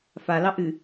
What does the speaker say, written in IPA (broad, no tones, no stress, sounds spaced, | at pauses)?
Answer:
f a l ɑ ʔ ɨ